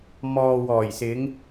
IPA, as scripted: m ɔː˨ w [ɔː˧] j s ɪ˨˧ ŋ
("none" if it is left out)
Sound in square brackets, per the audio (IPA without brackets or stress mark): ɔː˨˩